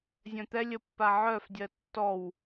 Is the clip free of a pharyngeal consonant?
no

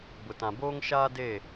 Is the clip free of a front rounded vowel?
yes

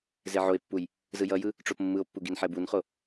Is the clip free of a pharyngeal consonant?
no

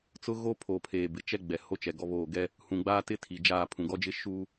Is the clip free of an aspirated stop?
no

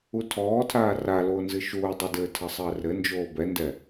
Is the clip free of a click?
yes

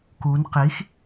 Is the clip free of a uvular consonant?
no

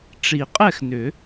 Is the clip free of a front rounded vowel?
no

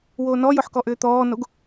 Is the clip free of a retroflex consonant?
yes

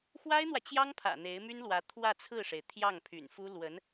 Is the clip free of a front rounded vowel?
no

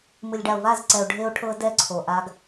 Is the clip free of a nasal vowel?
yes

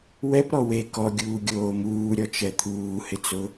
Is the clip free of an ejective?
yes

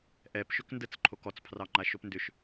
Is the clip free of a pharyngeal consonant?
yes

